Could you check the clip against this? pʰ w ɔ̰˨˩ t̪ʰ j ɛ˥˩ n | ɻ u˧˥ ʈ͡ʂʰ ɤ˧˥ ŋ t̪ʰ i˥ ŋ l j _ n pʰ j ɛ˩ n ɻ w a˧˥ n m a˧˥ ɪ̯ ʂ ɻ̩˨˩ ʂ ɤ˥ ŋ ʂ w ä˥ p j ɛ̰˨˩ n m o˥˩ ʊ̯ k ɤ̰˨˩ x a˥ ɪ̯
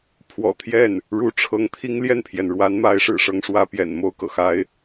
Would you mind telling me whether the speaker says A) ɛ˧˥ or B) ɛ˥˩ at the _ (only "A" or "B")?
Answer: B